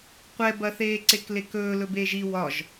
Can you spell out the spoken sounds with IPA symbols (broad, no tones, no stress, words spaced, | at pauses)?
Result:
qʷɛbɐθeː ǀeklekɵː lɵbeːʒi wɒʒ